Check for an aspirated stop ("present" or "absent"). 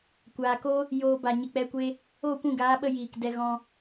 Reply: absent